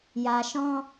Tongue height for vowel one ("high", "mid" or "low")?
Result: low